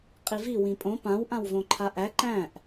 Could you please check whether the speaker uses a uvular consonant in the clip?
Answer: yes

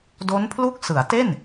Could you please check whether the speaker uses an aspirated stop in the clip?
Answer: yes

